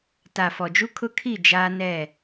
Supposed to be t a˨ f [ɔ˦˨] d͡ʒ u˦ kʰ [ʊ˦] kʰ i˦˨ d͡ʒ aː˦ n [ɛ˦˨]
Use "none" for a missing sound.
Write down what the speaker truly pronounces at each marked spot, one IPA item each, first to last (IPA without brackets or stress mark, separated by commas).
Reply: ɔ˨, ʊ˦, ɛ˦˨